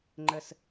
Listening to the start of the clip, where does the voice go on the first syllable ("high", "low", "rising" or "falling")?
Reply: low